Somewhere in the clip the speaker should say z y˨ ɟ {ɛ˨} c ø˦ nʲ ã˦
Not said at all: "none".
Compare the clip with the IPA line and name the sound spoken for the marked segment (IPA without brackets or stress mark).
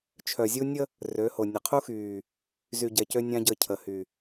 ɛ˨